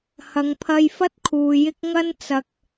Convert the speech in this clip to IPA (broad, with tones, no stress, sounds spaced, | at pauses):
h ɐ˨ ŋ pʰ ɐ˧ j f ɐ˥ t̚ kʰ uː˨ j ɪ˥ k̚ ŋ ɐ˥ n t͡s ɐ˧ k̚